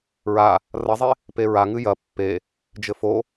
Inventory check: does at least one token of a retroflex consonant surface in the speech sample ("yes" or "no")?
no